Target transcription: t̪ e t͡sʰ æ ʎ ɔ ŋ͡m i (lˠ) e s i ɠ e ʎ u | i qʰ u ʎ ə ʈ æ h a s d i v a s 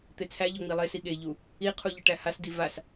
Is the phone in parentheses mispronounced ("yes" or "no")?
no